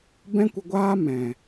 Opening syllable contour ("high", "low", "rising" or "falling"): high